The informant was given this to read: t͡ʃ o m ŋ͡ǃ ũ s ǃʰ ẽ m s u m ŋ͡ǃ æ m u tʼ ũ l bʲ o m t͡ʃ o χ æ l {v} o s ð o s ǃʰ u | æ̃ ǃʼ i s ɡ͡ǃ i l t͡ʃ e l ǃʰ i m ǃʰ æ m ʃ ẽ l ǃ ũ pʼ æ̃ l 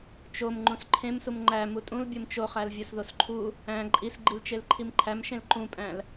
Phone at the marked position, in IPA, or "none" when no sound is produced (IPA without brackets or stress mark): vʲ